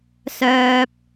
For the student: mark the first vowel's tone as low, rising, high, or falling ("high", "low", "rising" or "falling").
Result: high